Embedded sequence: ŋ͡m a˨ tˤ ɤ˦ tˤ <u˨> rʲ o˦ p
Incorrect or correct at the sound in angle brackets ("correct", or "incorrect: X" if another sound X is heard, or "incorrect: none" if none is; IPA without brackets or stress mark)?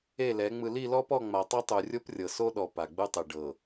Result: correct